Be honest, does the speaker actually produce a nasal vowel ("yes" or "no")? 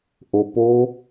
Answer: no